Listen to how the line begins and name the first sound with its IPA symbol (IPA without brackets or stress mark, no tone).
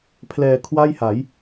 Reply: pʰ